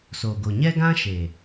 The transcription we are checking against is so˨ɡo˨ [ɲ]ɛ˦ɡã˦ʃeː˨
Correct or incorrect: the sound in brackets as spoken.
correct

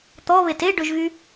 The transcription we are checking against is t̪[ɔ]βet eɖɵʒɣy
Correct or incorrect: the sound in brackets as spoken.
correct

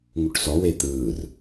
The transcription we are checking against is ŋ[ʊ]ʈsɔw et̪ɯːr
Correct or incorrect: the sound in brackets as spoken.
incorrect: u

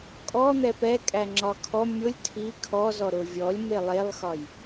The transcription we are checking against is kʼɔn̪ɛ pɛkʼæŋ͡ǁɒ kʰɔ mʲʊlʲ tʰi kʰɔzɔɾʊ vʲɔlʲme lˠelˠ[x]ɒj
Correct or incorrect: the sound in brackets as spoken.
correct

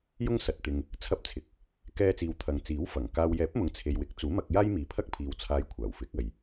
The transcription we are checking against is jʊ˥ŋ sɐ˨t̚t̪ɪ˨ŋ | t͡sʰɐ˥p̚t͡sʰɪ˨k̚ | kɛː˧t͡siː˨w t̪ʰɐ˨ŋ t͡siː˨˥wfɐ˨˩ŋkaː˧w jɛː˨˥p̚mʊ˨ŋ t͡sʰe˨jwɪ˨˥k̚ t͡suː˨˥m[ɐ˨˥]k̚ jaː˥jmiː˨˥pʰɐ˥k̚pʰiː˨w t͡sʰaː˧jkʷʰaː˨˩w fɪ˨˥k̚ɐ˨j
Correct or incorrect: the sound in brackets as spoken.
incorrect: ɐ˧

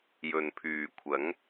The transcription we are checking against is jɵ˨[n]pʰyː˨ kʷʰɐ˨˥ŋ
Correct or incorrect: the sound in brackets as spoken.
correct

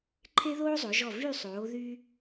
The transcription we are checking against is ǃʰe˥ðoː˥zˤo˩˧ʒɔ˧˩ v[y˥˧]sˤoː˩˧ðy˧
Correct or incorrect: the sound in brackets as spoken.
correct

